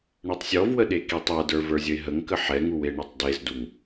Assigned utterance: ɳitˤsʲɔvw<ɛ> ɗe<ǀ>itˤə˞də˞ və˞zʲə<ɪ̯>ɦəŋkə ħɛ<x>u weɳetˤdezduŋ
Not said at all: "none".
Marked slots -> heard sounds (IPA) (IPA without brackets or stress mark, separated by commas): ə, k, ɪ̯, ŋ